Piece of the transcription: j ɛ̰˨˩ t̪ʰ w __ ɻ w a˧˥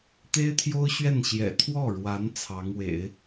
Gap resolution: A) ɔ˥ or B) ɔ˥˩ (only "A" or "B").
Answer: B